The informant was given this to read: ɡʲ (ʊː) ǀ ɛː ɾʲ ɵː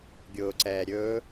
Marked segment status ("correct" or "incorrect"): correct